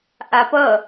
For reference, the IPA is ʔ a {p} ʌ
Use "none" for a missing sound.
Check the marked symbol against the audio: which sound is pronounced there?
p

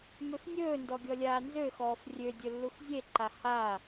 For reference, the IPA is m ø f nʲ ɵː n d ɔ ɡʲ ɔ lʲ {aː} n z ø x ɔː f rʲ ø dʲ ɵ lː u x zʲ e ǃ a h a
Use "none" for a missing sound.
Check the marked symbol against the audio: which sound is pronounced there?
aː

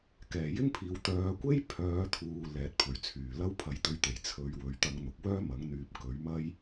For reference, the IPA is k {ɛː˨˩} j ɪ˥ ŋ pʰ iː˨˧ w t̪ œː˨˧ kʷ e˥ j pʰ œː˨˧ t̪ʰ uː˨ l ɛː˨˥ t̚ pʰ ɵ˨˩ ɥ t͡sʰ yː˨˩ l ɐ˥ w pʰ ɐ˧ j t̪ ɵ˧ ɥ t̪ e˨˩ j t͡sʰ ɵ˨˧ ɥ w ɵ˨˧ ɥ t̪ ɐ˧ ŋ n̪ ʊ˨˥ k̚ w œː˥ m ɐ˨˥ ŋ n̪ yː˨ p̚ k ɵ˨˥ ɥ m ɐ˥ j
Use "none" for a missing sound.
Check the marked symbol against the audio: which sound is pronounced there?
ɛː˨˩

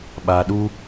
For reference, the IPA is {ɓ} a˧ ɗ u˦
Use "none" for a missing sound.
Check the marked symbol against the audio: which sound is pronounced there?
ɓ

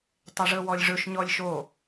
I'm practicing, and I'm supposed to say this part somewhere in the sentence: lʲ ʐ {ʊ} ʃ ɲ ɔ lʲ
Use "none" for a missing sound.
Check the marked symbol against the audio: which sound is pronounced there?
ɵ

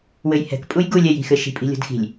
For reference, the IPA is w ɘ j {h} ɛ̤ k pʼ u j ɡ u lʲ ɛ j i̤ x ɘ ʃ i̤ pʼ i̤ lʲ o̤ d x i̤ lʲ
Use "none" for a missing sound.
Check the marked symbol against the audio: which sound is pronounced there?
h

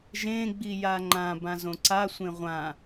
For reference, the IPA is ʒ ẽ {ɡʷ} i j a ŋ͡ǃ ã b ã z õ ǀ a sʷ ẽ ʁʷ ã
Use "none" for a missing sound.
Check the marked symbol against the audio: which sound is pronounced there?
ɡ͡b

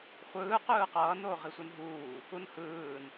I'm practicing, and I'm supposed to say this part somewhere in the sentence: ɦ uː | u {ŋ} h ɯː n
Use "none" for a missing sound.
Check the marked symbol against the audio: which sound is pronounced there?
n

